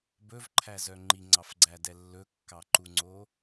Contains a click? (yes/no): yes